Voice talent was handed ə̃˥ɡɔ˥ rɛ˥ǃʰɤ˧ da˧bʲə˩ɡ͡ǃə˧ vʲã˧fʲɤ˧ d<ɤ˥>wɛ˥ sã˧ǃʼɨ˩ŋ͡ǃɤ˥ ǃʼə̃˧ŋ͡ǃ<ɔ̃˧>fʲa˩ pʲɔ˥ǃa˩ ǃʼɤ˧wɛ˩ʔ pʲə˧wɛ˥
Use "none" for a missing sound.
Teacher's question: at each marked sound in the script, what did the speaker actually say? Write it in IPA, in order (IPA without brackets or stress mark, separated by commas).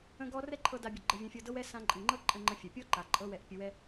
ɤ˥, ə̃˧